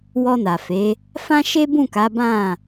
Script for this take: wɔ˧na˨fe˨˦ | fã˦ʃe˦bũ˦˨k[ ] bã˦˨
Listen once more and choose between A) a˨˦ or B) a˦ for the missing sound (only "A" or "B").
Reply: A